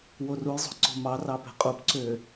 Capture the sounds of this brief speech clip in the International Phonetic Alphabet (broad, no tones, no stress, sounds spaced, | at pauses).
w o r u j zˤ o̤ ǀ o̤ m ɑ r ɑ p e̤ qʼ u p ǀ ø